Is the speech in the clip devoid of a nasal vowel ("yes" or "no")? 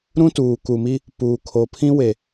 no